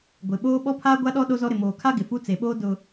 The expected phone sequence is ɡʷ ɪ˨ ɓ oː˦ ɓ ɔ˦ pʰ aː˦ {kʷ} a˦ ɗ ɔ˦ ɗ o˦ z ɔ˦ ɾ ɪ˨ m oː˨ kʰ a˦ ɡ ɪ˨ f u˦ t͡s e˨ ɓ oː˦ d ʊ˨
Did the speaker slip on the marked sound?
yes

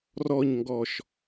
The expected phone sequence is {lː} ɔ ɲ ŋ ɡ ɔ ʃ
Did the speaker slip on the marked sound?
yes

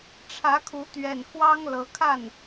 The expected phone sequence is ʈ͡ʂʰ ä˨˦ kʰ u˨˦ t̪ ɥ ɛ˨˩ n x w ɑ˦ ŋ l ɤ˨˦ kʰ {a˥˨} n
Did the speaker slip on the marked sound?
no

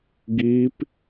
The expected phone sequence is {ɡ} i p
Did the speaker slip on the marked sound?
no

